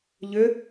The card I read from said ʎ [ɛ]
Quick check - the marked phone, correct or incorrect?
incorrect